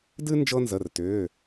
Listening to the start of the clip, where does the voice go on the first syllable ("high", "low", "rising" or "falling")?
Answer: high